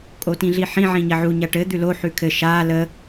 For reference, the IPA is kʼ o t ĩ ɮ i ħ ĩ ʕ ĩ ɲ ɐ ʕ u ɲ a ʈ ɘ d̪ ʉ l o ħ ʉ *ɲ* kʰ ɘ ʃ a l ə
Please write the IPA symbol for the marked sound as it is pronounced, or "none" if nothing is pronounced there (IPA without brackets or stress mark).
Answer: none